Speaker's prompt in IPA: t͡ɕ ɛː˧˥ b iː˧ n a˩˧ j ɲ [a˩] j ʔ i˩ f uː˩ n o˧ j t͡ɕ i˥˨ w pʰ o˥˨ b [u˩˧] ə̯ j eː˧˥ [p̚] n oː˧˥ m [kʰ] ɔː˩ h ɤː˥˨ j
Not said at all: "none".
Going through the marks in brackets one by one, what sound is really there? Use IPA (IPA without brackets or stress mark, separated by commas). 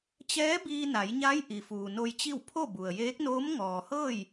a˧˥, u˩, k̚, ŋ